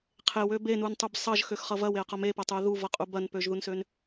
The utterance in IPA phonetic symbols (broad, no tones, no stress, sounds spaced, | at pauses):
qʰ e w ø b e n u n tˤ u b sˤ ʌ ʒ x ø x χ ʌ v ɐ w e ə̯ q ʌ m e p ɐ tˤ u ə̯ ð u v ʌ qʼ u b ɐ n p ø ʒ ð u n s ø n